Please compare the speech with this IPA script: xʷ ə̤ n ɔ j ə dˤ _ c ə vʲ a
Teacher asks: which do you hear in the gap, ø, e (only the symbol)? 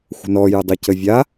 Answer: ø